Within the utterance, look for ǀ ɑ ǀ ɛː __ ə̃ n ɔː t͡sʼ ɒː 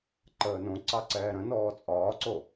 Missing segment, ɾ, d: ɾ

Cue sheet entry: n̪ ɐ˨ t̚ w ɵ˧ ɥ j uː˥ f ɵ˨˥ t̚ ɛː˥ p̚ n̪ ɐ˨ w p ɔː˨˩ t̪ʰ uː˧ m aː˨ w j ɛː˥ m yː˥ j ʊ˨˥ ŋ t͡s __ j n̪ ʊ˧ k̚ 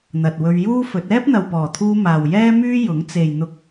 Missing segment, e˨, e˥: e˨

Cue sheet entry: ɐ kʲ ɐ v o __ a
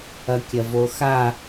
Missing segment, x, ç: x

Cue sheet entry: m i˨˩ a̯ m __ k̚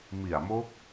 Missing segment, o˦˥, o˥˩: o˦˥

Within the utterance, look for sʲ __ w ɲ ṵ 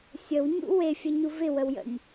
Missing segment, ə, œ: ə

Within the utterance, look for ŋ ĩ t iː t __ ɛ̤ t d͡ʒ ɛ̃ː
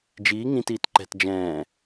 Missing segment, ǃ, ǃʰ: ǃ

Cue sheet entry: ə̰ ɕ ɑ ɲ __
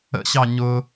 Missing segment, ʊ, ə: ʊ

